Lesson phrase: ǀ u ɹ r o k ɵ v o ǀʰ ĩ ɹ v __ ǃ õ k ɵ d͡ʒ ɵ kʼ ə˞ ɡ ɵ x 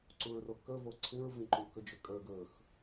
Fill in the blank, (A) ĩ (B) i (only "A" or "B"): A